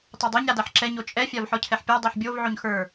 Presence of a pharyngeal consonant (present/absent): present